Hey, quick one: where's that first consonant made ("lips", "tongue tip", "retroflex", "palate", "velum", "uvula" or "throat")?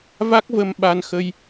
lips